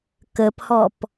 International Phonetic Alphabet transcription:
k ə p h ɔ p

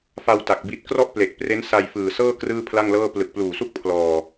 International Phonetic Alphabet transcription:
f a˧ w t a˨˩ k̚ b i˦˥ t̚ k r ɔ˥˩ ʔ p l e˨˩ k̚ p r e˦˥ n s a˧ j f ɯː˨˩ s ɤː˥˩ k r ɯː˥˩ pʰ l a˥˩ ŋ l ɤː˥˩ p l ɯ˨˩ k̚ p l uː˨˩ s u˥˩ k̚ pʰ l ɔː˧

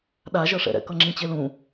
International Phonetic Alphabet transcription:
ɗ a ʒ ʌ ʂ ɛ̰ ɾ ɛ̰ k ʌ ŋ͡ǁ ĩ t͡ɕ e l ũ

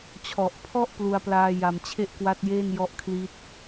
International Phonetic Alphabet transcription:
t͡ɕʰ ɔ˨˩ ʔ pʰ ɔ˥˩ ʔ p l u˧ a̯ p l aː˧ j a˨˩ m t͡ɕʰ e˥˩ ʔ k w a˦˥ t̚ j eː˥˩ n j ɔ˦˥ ʔ kʰ l i˦˥ t̚

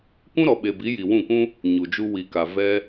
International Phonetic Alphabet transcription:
kʷ ũ˦ ɾ ɔ˨ ɓ e˨ b i˨˦ j i˨ w ũ˦˨ k ũ˦ | ɲ u˨ d͡ʒ u˧ w i˨ k a˨ v ɛ˦

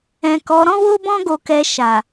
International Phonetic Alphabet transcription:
ɛ̃˨ k ɔ˨˦ ɾ ɔ̃˦ w o˦ b ɔ̃˦ ɡ o˧ k ɛ˧ ʃ a˨

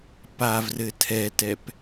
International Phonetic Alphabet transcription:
p a v r ɘ tʰ ɛ t ɛ p

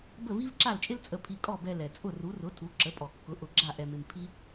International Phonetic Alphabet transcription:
b ə˥˩ v i˥ v ǁ a˥˩ l t͡ʃʼ ɪ˥ l t͡sʼ ə˧ pʰ i˧ kʼ ɔ˥˩ b ɛ˧ l ɛ˩ t͡sʼ ʊ˥˩ r u˩˥ r ʊ˩˥ tʰ u˩˥ ǁ ə˩˥ pʼ ɔ˩ kː ʊ˩˥ ʔ ʊ˩˥ ɡ͡ǁ a˥˩ ʔ ɛ˧ m ɪ˧ m pʰ i˥

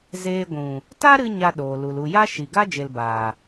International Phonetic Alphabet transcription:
z eː˧ ɡʷ ũ˨ | t a˦ ɾ ɨ˧ ɲ a˧ ɗ oː˨ l u˨ l u˨ j a˦ ʃ i˨ ɡ a˦ d͡ʒ e˧ l b aː˨

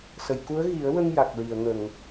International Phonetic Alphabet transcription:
s ə˨˩˨ j k u˧˥ ə̯ ɣ i˨˩˦ ə̯ w ə˧ ŋ j a˨˩ k̚ ɹ i˨˩˨ ə̯ ŋ ə˨˩˨ ŋ

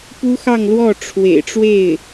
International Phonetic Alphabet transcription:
p u˥ x ɑ˥˧ ŋ l w ɔ˥˩ ʈ͡ʂʰ w ḛ˨˩ ɪ̯ ʈ͡ʂ w e˥˩ ɪ̯

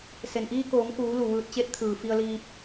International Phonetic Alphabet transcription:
s e˩ n ʔ iː˧ k oː˩˧ ŋ k uː˩˧ l u˩ ʋ ɯː˧ t̚ t͡ɕ e˧˥ t̚ t̪ʰ ɯː˩ f i˧ ə̯ l iː˧ p̚

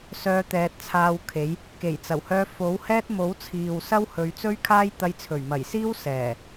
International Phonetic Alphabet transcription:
s œː˧ t̪ ɛː˨ t̚ t͡sʰ aː˧ w kʰ e˨˥ j | k e˨˩ j t͡s ɐ˨˩ w h œː˧ f o˨˥ w h ɛː˥ t̚ m o˨˥ w t͡sʰ iː˨ w s ɐ˥ w h ɵ˨˧ ɥ t͡s ɵ˥ ɥ kʰ aː˥ j t̪ ɐ˧ j t͡sʰ ɵ˨˩ ɥ m ɐ˨˩ j s iː˥ w s ɛː˨˩

